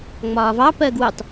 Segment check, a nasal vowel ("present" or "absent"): absent